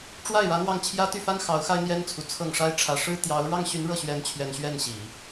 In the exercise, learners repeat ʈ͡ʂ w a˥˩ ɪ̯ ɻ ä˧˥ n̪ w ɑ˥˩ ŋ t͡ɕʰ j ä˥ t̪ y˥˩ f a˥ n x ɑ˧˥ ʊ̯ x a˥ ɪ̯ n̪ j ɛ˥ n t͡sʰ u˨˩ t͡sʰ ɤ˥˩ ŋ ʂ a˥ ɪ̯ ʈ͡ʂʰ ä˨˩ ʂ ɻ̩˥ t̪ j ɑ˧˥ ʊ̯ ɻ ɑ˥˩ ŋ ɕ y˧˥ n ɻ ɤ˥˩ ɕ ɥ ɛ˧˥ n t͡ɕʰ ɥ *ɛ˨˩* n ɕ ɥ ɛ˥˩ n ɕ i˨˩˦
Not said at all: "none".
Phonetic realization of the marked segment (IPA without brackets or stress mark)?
ɛ˨˩